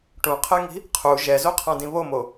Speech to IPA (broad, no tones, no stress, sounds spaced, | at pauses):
ʈ ũ qʰ ɛ ŋ i̤ | qʰ u ʒ ɛ z o qʰ ã d ĩ β o m o